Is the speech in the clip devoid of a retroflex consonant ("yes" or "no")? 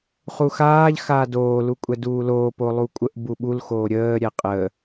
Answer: yes